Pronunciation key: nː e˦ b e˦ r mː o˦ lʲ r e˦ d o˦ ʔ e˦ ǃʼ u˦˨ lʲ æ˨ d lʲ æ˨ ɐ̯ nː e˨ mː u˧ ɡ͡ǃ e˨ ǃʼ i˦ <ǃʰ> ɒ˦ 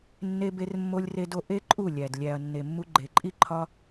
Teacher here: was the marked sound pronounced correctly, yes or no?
yes